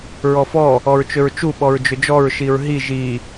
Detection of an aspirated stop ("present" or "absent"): absent